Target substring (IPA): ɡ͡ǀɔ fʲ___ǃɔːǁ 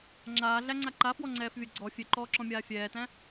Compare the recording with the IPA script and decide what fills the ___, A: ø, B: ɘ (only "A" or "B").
A